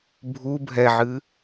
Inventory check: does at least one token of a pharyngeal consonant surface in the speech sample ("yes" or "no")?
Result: yes